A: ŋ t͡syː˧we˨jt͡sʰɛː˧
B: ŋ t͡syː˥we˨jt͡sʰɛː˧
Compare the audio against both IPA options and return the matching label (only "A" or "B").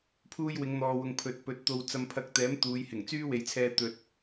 B